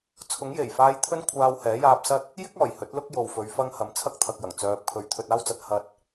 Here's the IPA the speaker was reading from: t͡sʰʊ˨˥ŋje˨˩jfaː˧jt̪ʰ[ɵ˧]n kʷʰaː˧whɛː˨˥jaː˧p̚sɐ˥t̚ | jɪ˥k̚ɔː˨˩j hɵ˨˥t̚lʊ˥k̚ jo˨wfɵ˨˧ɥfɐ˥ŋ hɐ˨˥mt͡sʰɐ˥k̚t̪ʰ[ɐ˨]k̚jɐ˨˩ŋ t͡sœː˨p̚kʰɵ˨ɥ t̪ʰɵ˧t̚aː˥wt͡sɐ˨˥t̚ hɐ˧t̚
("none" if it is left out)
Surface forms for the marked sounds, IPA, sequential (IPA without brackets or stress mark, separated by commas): ɵ˥, ɐ˨